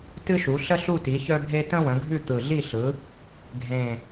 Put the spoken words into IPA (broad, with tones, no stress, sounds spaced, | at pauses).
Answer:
t ɨ˦ ʃ u˩˧ ɬ ə˦ ɬ u˦˨ t i˩˧ ç œ˦ bʱ e˦ t ə̃˦ w ə̃˩˧ ɡʱ ʉ˦˨ t̪ ɯ˨˩ ɮ i˦˨ ɬ ɯ˩˧ | ɡʱ ẽ˨˩